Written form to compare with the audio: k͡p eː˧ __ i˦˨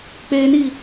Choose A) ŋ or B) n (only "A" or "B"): B